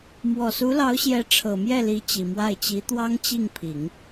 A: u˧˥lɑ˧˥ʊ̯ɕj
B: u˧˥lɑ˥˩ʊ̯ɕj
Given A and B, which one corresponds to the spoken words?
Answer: A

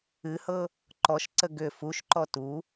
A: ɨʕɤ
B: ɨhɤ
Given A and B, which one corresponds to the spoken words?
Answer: B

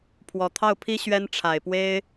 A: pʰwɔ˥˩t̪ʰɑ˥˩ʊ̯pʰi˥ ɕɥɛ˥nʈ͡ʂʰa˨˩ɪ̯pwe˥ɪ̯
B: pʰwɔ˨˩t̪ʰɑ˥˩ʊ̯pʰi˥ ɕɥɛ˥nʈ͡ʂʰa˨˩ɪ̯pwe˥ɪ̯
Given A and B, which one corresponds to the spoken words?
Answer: B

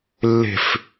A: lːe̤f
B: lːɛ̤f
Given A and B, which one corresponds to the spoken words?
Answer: A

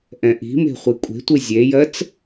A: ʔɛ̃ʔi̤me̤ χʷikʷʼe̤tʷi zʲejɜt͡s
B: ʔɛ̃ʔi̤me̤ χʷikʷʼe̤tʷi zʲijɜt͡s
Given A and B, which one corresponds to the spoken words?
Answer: A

